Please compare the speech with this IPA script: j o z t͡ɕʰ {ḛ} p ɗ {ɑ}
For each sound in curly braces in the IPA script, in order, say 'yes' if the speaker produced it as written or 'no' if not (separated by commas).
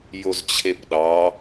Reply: no, yes